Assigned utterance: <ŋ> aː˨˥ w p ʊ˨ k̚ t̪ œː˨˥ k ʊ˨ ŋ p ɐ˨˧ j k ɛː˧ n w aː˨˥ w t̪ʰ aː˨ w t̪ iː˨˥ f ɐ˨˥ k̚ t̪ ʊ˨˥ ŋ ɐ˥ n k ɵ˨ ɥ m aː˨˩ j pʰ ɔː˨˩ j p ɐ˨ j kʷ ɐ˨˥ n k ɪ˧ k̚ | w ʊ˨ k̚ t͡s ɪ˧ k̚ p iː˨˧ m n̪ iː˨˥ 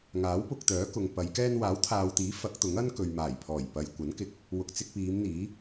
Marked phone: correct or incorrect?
correct